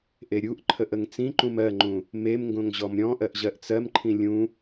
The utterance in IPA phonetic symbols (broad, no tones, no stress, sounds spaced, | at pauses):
ʔ e ɾʲ u ʔ ǃʰ ə ʔ ə ŋ t͡s ĩ ǃ ũ m ɜ ŋ͡ǃ ũ | m e m ŋ ɡ õ ŋ ʑ ɔ m ɾʲ ɔ̃ ʔ ɜ ʔ ʑ ɜ ʔ t͡s ɜ m ǃʰ ĩ lʲ ũ